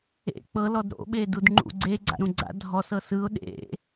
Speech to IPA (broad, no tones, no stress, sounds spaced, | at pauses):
ḛ k͡p ɤ l ɔ d ɾ o̰ ɓ e d u d ŋ͡ǃ ṵ ɡ͡ǀ e ɡ͡ǀ a̰ ɾ ũ ɡ͡ǀ a̰ dʱ ɔ s ɤ s ɯ ʊ̯ ɗ ḛ